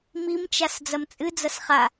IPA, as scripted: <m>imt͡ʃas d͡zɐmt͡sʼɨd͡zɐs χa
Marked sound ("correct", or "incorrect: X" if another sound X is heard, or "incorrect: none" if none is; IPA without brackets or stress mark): correct